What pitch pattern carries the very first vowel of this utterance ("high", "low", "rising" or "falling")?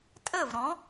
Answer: falling